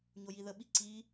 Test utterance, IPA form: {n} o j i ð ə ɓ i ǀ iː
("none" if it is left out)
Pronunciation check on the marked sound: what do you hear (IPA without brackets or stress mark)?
ɲ